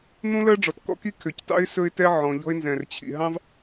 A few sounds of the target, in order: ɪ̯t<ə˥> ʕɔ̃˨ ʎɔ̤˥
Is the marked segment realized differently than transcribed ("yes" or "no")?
yes